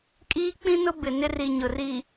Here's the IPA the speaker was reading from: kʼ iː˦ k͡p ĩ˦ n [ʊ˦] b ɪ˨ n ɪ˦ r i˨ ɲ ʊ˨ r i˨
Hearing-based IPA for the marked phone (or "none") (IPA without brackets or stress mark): ʊ˦